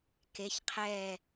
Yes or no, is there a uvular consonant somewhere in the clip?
yes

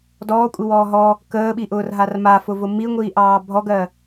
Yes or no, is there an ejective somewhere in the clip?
yes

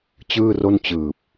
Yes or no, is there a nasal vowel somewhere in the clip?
no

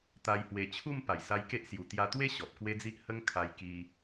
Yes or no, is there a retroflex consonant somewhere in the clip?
no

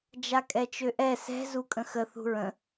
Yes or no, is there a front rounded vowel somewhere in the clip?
yes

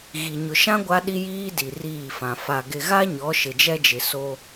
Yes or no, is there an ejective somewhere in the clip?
no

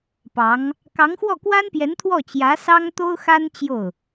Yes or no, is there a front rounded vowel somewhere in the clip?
no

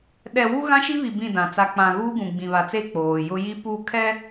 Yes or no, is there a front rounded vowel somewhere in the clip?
no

